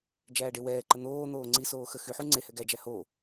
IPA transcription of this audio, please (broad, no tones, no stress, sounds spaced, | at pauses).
d͡ʒ æː ɖ e w ɛː ǃ ə n̪ oː n̪ oː ŋ͡ǀ i s oː x ə x y ħ u ŋ͡ǀ e h ɛ ɡ æ d͡ʒ æ h o